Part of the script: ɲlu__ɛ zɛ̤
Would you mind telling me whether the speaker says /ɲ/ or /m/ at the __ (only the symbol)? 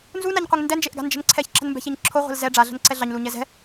ɲ